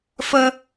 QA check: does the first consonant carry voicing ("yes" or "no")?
no